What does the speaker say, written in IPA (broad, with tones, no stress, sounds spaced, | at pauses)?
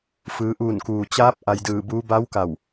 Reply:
f ɯː˩˧ ʔ uː˧˩ n k uː˩ t͡ɕ aː˧˥ p̚ ʔ a˧ j d ɯː˧˩ b uː˧˥ b a˧˥ w k a˧˩ w